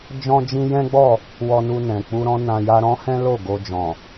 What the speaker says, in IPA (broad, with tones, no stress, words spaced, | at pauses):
d͡ʒɔ̃˦d͡ʒĩ˦ jɛ̃˦ɡ͡bɔ˦˨ | wɔ˧nu˧nɛ̃˨ k͡pu˧ɾɔ̃˦nã˧ja˦ ɾɔ̃˦hɛ̃˦ lo˦˨ ɡo˧d͡ʒɔ̃˨